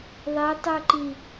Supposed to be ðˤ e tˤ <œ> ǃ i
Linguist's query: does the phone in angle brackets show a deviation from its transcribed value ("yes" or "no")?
no